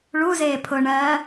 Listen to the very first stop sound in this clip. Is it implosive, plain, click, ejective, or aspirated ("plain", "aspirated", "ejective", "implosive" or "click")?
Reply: aspirated